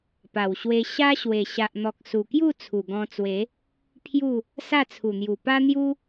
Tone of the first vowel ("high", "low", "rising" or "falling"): low